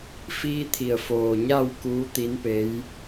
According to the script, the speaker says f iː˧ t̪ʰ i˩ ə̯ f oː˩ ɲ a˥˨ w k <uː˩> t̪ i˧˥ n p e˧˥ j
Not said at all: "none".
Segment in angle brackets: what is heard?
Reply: uː˧˥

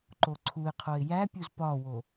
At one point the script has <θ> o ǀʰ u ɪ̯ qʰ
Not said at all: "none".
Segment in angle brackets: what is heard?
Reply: ǃ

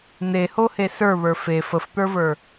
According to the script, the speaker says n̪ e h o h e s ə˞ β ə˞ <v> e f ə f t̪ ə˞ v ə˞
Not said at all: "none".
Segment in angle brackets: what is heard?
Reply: f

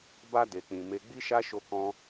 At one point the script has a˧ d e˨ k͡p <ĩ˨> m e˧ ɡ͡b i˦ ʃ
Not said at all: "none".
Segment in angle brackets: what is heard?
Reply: ĩ˨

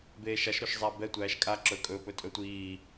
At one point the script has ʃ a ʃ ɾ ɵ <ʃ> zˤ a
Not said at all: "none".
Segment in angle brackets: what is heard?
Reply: ʃ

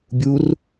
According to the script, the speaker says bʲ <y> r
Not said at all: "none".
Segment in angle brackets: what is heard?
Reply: u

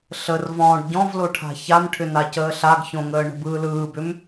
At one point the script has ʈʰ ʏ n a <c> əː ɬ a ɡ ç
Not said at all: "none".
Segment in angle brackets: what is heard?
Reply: c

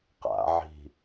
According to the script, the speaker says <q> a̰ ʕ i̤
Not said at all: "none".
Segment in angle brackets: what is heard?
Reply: q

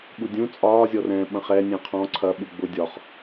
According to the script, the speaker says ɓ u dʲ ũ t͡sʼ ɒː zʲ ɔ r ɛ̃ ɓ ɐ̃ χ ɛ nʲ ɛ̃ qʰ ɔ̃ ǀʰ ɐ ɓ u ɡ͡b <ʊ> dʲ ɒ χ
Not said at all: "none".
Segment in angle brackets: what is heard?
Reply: ʊ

